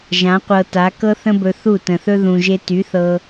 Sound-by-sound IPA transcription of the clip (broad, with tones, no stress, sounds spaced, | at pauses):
ʒ ã˨˦ qʷ ɤ˧ t a˨˦ k ɤ˦ θ ə̃˦ b ɵ˧ θ u˦˨ t ə̃˨ θ ɵ˦ ð ũ˨ ʒ e˧ t y˨˦ θ ɤ˧